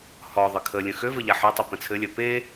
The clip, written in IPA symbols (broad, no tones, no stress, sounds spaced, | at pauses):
h ɔ ðˤ ɘ kʰ ə lʲ ə̃ x ø v ə ʎ a ħ œ tˤ ɘ p ə̃ t͡sʰ ɘ lʲ œ p e